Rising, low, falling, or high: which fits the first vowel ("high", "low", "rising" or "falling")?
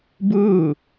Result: falling